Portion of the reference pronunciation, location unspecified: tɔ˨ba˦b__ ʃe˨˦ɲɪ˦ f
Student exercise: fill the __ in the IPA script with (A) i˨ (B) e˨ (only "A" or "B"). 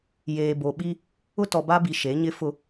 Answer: A